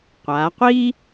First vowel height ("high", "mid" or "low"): low